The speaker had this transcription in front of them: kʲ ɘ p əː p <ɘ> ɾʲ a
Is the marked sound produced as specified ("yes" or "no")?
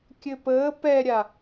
no